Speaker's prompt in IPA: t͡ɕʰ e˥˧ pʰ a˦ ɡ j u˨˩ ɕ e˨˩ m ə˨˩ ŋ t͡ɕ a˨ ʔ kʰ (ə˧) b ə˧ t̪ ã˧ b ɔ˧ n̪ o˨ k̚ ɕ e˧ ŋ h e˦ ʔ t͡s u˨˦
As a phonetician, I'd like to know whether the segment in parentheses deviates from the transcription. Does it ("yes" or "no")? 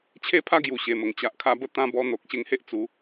yes